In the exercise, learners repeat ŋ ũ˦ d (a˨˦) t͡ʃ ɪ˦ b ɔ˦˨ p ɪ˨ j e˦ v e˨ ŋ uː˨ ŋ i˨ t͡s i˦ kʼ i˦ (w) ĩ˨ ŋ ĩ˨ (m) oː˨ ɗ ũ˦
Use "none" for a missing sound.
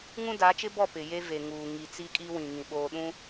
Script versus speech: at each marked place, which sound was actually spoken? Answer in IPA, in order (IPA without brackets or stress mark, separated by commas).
a˨˦, w, ɓ